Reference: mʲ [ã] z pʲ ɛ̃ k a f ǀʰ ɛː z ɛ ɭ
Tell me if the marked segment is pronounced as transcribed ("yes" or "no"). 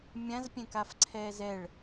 yes